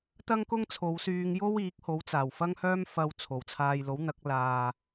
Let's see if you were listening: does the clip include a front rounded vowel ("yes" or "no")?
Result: yes